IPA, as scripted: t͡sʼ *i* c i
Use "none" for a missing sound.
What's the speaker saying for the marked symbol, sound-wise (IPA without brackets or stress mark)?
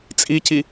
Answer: i